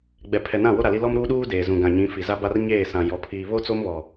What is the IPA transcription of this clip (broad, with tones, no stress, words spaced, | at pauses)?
ɡ͡bɛ˨ pʰɛ˨nã˦˨wo˦ ɾa˨li˦ lɔ˦mɾuː˦ɗuː˦ deː˨ zũ˨ɡã˨ɲĩ˨˦fi˨ za˦ba˦rɲeː˦˨sã˨ jɔ˨pʰiː˨ βo˦t͡so˦mβɔ˨